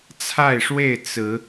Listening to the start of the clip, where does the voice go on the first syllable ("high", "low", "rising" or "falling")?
falling